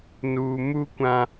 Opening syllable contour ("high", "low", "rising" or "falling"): low